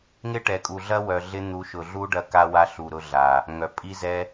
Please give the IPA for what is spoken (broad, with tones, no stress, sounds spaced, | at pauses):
ŋ ɪ˦ ʈ ɛ˨ kʼ u˨ ɮ ɐ˦ w œ˨ ɮ ɪ˦ n̪ u˨˦ ʃ ʊ˨ ɮ u˦ ɖ ɐ˧ k a˧ w a˧ ɬ u˨ ɾ ʊ˧ ɮ a˨ | ŋ œ˨ pʼ i˦ z ɛ˦